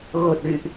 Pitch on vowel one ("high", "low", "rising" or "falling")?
low